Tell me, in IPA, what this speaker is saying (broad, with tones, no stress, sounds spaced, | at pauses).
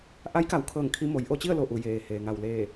ʔ a˧˥ j k a˩˧ w kʰ ɤː˧˩ ŋ kʰ i˧ m o˩˧ j ʔ o˥˨ t͡ɕ i˥˨ ə̯ l o˧˩ ʔ u˧˩ j eː˩ h eː˩ ŋ a˧˩ w l eː˧˩